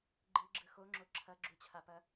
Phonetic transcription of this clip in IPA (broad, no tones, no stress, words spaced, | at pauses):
ɡ͡ǃɨɡ͡ǁɯ xoŋ͡ǁo ǁʰɐɡ͡ǁut͡ɕʰapɐ